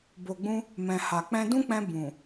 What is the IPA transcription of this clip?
b o˨ ɡ͡b ũ˧ | m ɛ̃˨ h a˨ k͡p ɛ̃˧ d ũ˦ k͡p ɛ̃˧ b ũ˨

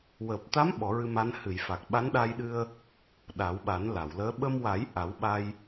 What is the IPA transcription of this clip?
w əː˨˩ p̚ t̪ a˧˥ m ɓ ɔ˨˩˦ ɹ ɨ˧ m a˧˥ n h ɨ˨˩˨ j f a˨˩ k̚ ɓ a˧˥ n ɗ a˧ j ɗ ɨ˧ ə̯ | ɗ a˨˩˦ w ɓ a˨˩˦ n l a˨˩˨ w l əː˧˥ ɓ ə˧ m w a˨˩˦ j ʔ a˨˩˦ w ɓ a˧ j

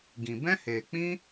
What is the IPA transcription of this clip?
ɡ ĩ˨ b ɛ̃˦ h eː˨ k͡p ĩ˦

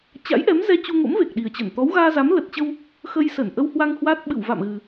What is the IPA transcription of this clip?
t͡ɕ a̰˧˥ j ʔ ɛ˨˦ m z ɛ˧ t͡ɕ u˧ ŋ o̰˧˥ m v e˨˩ k̚ ɗ i˨˩ ə̯ t͡ɕ ə˧˩ n t̪ ɔ˨˦ w ɣ aː˧ z a˨˦ m l ə˨˩ t̚ t͡ɕ ə˧ w | x ə˧ j s ə˧˩ n ʔ ə˧ w h w a˧ ŋ h w aː˦˥ t̚ ɓ ɨ̰˧˨ w v a̰˧˨ m ɣ ɨ˨˩

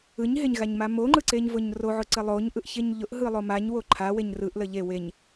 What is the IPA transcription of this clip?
ɯ ɲ ɦ e ɲ ɣ a ɲ m a m o ŋ͡ǃ ɯ ǀ e ɲ v ʊ ɲ r o ʕ ʊ ǀ ə lˠ o ɲ ʔ ɯ ʔ ç e ɲ ʎ ʊ ʔ ɦ ɯ lˠ o m a ɲ w o ǃʰ a w e ɲ r ɯ ʔ l ə ʎ e w e ɲ

